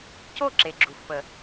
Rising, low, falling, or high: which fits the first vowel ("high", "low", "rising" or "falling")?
falling